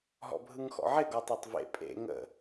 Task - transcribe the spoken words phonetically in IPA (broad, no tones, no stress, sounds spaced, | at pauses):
ɦ ɔ̰ bʱ ɯ ŋ x ɔ̰ ʕ ɪ ɡ ɔ tˤ ɛ tˤ v ḛ pʼ ḛ ŋ ə̰